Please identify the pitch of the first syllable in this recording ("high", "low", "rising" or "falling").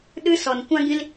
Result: high